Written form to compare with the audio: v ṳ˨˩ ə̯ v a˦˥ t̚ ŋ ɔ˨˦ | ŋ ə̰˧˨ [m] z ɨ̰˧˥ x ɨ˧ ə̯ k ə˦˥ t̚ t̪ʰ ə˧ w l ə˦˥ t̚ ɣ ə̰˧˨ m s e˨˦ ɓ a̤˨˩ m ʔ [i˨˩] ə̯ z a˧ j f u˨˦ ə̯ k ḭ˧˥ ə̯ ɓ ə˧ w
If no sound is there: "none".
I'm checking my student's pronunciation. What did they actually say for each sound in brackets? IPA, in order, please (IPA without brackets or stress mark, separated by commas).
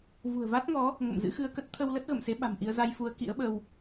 m, i˧